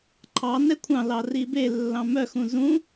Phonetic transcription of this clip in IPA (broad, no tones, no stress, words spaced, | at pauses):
ǃʰɑ nɛkʷʰɑ̃lɑ ribelːɑ̃ mœxũ zũ